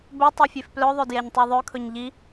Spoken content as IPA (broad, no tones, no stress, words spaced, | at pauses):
bɵtˤœ fʲefplœðˤœ djɛɲtˤuðˤœkʰɵɲ ʎi